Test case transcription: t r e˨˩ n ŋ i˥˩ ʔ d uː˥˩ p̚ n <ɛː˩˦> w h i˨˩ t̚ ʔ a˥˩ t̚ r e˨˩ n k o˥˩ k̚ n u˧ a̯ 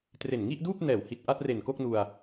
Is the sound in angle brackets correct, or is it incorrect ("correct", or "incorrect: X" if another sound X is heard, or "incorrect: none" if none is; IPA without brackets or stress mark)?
correct